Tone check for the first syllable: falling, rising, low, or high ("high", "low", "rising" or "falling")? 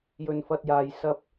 high